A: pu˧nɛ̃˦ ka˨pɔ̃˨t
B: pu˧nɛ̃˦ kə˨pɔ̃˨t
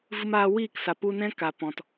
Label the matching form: A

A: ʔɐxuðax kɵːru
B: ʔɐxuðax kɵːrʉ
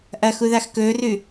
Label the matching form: B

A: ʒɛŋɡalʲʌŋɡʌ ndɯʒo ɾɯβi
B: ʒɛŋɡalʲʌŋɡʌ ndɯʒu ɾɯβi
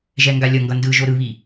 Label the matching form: A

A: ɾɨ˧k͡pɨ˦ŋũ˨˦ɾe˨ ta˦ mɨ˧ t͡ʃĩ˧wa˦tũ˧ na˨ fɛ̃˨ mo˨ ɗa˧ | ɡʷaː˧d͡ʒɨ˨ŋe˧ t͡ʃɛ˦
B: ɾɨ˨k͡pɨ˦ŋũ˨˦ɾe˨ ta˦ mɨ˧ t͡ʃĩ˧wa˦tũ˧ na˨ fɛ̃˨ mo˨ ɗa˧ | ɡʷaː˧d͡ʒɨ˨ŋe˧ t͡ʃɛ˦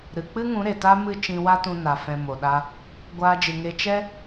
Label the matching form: B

